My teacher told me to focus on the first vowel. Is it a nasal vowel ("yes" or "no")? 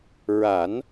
no